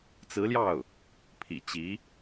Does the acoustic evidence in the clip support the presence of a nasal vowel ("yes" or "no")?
no